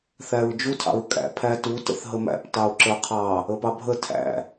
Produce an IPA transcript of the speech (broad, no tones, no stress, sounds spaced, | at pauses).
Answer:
θ æ ɹ d͡ʒ u tʰ ɑ̰ ɹ kʼ æ̰ pʰ æ t u t ə̰ θ ɦ ə m æ̰ p t ɑ ʊ̯ ǁ ə˞ qʰ ɑ | ə p ɑ bʱ ə tʰ æ̰